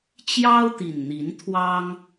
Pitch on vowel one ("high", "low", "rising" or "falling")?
high